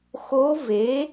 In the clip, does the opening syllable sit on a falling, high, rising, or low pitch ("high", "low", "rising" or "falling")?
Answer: rising